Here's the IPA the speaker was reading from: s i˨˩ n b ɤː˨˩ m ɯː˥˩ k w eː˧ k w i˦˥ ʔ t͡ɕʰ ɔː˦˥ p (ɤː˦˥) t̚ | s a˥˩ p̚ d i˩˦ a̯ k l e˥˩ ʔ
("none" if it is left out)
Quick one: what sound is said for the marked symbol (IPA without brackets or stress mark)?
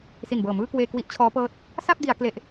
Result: ɤː˦˥